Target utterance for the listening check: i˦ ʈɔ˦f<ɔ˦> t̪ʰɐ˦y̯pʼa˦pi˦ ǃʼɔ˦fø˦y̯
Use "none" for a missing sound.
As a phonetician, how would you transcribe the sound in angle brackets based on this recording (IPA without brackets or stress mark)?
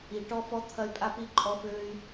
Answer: ɔ˦